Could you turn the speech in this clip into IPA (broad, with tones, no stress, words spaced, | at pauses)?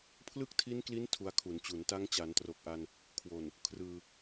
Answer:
pʰlɯ˥˩k̚tʰi˦˥nkli˦˥n tʰu˧a̯kʰu˩˦nt͡ɕu˩˦n ta˦˥ŋt͡ɕa˩˦ntro˨˩k̚ʔa˧n | kʰwo˨˩n | kʰrɯː˧